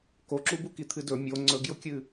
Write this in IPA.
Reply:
koǁu bukit̪ʰɨdɵ mʲo ŋ͡ǀɵɡjʊkʲɨ

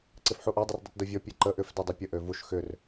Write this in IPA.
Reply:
ǀɪfħuʔɔ dˤʏrdˤitdovʲɔ pʲeǃə ʔʏf dɛdˤɛpʲə ʔøvuʃ xʏr

